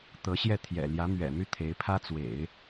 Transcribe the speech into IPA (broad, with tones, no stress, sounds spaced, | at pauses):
t̪ ɤ˧˥ ɕ j ɛ˥˩ t̪ʰ j ɛ̰˨˩ l j ä˧˥ m ɥ ɛ̰˨˩ m y˥˩ t̪ʰ e˧˥ ɪ̯ pʰ ä˥ t͡s w ḛ˨˩˦ ɪ̯